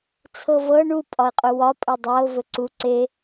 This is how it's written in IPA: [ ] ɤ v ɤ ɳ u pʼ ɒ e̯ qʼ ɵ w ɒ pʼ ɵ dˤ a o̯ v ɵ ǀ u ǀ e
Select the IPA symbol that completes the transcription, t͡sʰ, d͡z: t͡sʰ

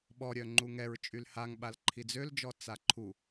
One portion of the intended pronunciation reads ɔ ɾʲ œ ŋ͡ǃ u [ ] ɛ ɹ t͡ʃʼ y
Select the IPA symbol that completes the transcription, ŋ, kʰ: ŋ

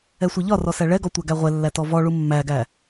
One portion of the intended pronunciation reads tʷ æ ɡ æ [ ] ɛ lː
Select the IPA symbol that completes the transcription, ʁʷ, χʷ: ʁʷ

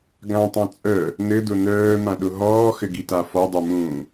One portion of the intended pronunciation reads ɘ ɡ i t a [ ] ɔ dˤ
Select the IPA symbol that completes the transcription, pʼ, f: f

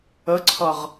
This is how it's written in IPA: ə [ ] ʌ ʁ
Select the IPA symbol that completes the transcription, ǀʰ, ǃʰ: ǀʰ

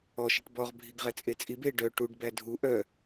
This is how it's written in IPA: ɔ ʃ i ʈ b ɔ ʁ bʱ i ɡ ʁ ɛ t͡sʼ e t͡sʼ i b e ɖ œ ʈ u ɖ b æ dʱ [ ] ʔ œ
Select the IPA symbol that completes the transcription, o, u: u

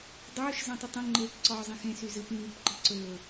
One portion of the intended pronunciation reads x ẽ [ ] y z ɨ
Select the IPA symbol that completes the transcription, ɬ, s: s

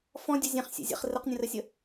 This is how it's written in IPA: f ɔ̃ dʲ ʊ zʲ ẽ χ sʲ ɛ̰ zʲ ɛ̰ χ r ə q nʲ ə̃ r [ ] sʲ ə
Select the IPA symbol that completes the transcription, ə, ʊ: ə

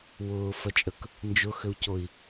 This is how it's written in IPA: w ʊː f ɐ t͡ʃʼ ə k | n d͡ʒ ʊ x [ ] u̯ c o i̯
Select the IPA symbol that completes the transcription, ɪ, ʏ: ʏ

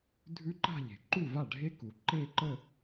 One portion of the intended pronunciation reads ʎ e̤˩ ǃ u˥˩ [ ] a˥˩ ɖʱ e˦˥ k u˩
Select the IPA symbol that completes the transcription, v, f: v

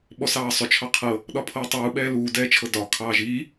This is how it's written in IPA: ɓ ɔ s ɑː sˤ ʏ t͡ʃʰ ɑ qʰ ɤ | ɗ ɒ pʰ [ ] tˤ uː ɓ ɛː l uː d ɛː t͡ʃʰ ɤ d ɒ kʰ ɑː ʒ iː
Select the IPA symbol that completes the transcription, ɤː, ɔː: ɤː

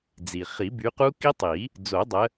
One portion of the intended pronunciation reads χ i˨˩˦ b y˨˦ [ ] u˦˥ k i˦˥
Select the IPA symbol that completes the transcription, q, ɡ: q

